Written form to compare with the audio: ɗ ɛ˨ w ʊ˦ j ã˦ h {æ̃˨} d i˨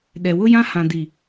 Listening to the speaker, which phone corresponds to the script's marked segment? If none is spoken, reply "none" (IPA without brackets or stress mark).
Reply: ã˨